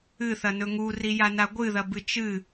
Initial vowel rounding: unrounded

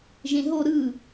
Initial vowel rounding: unrounded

